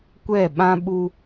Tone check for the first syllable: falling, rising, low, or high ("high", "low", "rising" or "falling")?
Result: falling